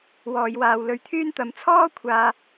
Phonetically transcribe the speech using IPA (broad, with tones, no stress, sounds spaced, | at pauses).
w ɔː˧ j w aː˧ w l ɵ˧ ɥ t̪ʰ yː˥ n t̪ ɐ˧ m t͡sʰ ɔː˥ kʷʰ aː˧